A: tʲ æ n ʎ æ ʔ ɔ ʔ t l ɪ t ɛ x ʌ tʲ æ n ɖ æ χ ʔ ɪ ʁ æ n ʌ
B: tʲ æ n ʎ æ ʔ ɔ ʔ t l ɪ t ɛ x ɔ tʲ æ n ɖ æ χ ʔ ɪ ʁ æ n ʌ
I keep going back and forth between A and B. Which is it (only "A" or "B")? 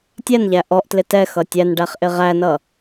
A